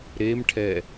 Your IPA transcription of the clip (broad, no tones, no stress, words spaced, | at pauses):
ɾemʈʰɛ